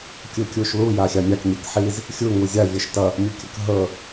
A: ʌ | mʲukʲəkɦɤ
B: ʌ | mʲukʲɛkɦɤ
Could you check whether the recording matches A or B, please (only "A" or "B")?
A